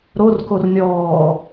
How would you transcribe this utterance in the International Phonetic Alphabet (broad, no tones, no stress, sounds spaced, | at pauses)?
ɾ o r k o r nʲ ɔː